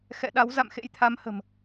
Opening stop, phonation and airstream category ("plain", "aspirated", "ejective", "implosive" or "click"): implosive